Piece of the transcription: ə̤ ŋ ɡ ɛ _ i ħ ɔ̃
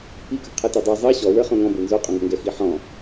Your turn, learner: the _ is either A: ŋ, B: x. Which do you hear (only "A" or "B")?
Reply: B